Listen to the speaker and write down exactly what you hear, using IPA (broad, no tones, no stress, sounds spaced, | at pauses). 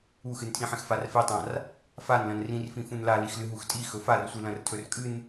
u x ɨ n tʰ ĩ ħ ẽ x f a r f e tˤ ã r | f a n l ɐ̃ n r ĩ r f ĩ f ũ n l a l i x l ɨ ɦ u x tʼ i x ɵ f a r sʷ ɨ l ɐ̃ r tʰ ɵ r kʼ ɨ n